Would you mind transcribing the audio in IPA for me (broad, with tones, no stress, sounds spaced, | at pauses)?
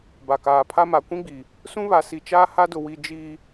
b a˨ k aː˨ pʰ a˦ m a˨ kʷ ĩ˦ ɡ͡b iː˨ | s ũ˦ β a˨ s i˨ t͡ʃ aː˦ h a˦ d ʊ˨ w i˨ d͡ʒ iː˨